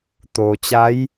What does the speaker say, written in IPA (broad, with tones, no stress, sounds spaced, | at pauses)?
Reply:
t̪ oː˩ t͡ɕ a˧˥ j